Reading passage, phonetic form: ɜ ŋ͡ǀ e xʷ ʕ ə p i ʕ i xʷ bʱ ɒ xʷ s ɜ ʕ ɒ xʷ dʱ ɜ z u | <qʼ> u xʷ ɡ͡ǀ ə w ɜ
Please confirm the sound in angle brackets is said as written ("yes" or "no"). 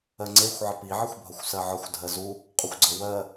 yes